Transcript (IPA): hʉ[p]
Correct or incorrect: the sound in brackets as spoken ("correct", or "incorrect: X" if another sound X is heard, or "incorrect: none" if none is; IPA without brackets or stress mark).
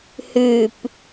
correct